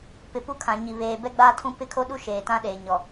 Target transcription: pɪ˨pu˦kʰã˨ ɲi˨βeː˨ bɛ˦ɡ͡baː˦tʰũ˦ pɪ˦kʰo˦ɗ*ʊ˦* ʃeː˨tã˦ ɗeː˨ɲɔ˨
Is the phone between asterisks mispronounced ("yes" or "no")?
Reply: yes